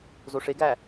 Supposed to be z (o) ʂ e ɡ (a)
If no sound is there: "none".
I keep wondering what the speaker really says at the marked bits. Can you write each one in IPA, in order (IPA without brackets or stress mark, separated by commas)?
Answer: o, æ